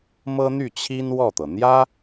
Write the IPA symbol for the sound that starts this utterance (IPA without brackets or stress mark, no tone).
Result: m